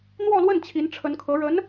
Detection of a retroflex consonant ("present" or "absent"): present